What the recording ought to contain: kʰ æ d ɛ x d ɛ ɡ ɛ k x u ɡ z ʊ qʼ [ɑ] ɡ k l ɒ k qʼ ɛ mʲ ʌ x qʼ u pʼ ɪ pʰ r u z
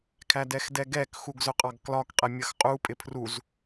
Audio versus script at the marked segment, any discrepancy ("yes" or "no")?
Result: no